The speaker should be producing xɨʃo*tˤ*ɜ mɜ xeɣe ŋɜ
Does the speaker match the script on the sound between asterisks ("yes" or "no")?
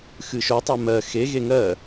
yes